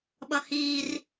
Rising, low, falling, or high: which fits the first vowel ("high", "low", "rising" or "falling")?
low